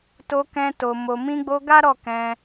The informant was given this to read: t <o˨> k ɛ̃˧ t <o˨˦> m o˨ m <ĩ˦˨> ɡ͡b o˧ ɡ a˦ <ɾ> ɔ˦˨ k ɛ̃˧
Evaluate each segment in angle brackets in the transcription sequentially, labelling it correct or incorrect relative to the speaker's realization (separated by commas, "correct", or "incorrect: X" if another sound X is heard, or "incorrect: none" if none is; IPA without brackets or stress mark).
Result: incorrect: o˧, incorrect: o˨, incorrect: ĩ˧, correct